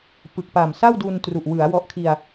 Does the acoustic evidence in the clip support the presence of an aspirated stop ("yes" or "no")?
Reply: yes